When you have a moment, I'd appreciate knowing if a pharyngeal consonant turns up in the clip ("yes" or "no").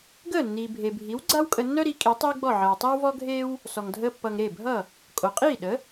yes